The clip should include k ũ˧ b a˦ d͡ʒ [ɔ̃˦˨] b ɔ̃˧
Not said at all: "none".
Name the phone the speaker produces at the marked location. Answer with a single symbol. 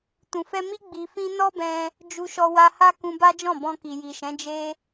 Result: ɔ̃˦˨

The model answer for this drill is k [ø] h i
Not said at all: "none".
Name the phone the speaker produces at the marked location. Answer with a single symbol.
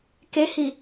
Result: e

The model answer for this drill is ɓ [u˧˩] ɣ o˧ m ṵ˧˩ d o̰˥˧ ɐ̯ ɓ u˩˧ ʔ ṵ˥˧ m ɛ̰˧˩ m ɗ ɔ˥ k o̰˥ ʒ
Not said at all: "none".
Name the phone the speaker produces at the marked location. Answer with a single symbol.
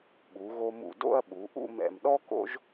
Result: u˩˧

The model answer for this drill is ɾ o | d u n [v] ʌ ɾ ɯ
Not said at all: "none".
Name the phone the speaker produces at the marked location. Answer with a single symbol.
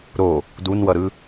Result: w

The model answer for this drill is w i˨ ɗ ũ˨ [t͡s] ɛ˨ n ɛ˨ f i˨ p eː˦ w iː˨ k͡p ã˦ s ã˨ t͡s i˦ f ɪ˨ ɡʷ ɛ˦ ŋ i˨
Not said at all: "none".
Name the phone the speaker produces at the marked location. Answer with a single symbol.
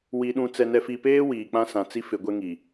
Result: t͡s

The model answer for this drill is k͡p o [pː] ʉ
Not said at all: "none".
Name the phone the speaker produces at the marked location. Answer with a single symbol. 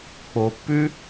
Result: pː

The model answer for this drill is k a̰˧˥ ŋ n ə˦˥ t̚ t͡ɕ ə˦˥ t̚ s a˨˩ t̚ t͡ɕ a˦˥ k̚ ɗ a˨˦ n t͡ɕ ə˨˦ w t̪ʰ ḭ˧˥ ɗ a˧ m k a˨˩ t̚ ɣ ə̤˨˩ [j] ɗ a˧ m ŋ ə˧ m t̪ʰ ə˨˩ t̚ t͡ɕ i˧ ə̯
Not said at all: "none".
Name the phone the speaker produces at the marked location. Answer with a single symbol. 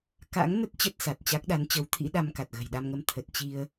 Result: j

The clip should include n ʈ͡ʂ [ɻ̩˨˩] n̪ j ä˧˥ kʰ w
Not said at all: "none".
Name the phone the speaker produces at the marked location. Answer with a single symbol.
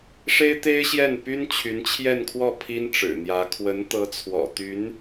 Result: ɻ̩˨˩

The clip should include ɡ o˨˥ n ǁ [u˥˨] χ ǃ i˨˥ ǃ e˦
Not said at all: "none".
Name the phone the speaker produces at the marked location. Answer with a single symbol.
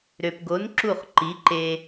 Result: u˥˨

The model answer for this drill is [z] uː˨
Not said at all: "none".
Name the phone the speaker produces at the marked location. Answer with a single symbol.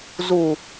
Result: z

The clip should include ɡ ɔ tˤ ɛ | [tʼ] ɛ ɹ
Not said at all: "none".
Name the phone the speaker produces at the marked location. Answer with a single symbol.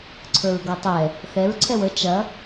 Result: θ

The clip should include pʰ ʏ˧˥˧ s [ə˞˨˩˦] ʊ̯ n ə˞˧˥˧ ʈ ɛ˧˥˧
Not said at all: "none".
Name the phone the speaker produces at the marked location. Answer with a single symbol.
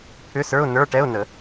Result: ə˞˧˥˧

